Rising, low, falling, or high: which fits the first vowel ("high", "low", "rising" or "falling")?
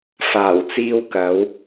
low